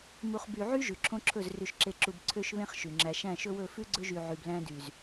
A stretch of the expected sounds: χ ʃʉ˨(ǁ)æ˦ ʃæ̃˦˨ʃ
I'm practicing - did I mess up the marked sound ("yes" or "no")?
yes